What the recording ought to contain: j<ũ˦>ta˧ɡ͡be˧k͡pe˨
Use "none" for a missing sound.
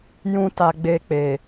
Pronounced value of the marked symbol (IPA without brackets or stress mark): ũ˦